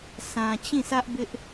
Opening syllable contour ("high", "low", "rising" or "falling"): low